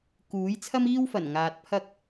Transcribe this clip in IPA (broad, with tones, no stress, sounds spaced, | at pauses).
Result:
k uː˨˥ j t͡sʰ ɐ˥ m iː˥ w f ɐ˨˩ n ŋ aː˨ t̚ pʰ ɐ˥ k̚